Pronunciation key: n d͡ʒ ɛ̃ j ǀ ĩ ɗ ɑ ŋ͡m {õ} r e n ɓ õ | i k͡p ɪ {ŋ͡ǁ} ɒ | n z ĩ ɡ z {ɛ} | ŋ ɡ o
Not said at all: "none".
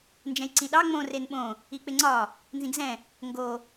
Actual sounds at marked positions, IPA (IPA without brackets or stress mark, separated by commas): õ, ŋ͡ǀ, ɛ̃